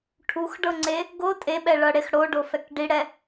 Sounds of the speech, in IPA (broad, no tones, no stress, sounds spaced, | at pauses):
ʈʰ u x ɖ ɤ ŋ͡ǀ e | ɡ o tʼ e ɓ ɛ ɭ ɤ ɽ e x ɽ o ɖ o f ɛ k ɖ i ɽ ɛ